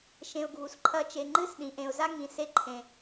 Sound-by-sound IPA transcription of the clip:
ʃẽ˨ʊ̯ɡʱu˨s ǃʰɐ˦ t͡ʃe˨ŋ͡ǃɨ˦˨sɗĩ˨ ʔẽ˨ʊ̯za˦ŋĩ˨ se˦ ǃʰẽ˨

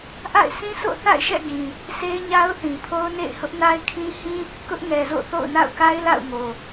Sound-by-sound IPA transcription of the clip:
ʔa̰˦˨ɪ̯sʰĩ˦sʰo̰˦˨ θa̰˦˨ɪ̯ʃɛ̰˦˨ɡĩ˨ | sʰe˦ɪ̯ɲa˦ʊ̯θĩ˨pʰo˦ʊ̯ nḛ˦˨ɪ̯hʊ˦ʔna˦ɪ̯kʰĩ˦ hĩ˦ | kʊ˦ʔŋɛ˨zo̰˦˨ θo̰˦˨ʊ̯na̰˦˨ʊ̯ka˦ɪ̯ la̰˦˨ʊ̯ŋo˨

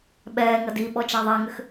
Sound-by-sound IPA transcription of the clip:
ɓɛːŋɐ di ɓɔt͡ʃaðˤæŋʏx

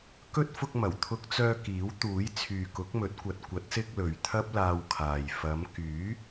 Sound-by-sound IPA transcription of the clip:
kɵ˥t̚ fʊ˧k̚mɐ˨˩wt̪ʰʊ˧k̚t͡sœː˧ kiː˨˥wt̪uː˨˥j t͡sʰyː˨kʊ˨˥k̚mɵ˨˥t̚kʷɐ˨t̚ kʷɐ˨˥t̚sɪ˧k̚ lɵ˨ɥt̪ʰɐ˥p̚laː˧wkʰaː˨j fɐ˨˧m kyː˨˥

